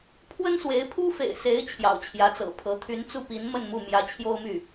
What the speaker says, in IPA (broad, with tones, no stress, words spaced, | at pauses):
pʰwə˥nswe˧˥ɪ̯ pʰu˥fḛ˨˩ɪ̯se˧˥ɪ̯ t͡ɕʰjɑ̰˨˩ʊ̯t͡ɕʰjä˧˥t͡sɤ̰˨˩pʰɤ˧˥ t̪ʰy˧˥nt͡su˥˩pi˧˥n mə˥˧nmu˥˩ mjä˧˥t͡ɕʰjo˥ʊ̯my˥˩